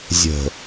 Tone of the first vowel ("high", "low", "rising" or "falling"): low